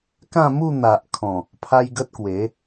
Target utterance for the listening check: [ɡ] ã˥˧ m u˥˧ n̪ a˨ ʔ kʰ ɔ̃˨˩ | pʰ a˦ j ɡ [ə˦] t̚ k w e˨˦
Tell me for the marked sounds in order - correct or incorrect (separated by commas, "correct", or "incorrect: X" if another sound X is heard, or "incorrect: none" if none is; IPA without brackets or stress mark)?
incorrect: k, correct